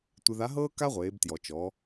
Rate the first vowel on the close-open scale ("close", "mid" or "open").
close